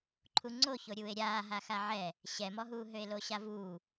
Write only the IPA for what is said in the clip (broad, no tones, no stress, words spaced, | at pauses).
ǃʰuŋ͡ǀoço ɾʲuːe̯ɾʲaːɦa xaʕɛ | ɕɛmɔɦuː ɦøe̯loɕavuː